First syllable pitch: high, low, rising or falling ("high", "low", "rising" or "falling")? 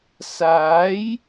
rising